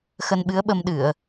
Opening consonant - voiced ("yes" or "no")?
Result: no